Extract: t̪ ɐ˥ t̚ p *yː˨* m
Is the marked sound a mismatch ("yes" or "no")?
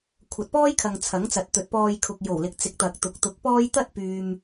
no